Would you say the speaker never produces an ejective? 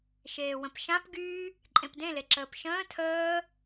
no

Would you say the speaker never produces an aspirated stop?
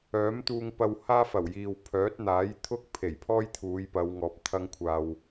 no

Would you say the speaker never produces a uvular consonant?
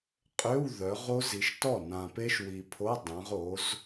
no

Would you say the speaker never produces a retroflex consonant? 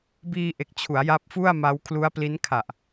yes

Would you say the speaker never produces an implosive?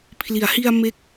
yes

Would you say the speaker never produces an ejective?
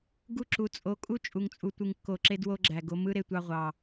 no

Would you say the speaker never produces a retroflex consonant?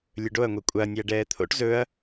no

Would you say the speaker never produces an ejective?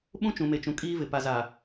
no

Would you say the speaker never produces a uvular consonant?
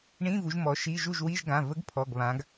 yes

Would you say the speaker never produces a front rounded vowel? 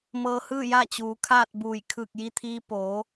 yes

